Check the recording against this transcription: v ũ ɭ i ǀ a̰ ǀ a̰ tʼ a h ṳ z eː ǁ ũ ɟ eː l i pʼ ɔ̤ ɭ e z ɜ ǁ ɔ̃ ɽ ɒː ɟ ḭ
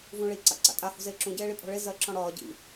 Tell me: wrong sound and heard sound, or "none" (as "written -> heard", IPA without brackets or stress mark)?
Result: l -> ɭ